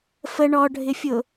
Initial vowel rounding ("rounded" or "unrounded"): unrounded